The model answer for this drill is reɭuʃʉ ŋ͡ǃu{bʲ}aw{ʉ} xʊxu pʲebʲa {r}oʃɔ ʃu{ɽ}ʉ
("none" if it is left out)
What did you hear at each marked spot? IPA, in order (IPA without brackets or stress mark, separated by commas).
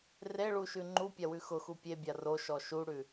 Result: pʲ, ʉ, r, ɽ